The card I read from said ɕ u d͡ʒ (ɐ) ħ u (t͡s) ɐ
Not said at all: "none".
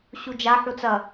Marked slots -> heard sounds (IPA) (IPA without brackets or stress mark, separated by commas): a, t͡s